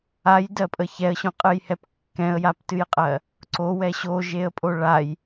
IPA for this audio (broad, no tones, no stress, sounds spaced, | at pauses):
a j d ɜ pʼ ə ç ɛ ə̯ ɕ õ qʼ ɨ j h ɛ p kː ɛ̃ ə̯ j a p t ɨ j qʼ ɜ | ǀ o w ɛ ɕ o ʒ e ə̯ pʼ o ɭ a j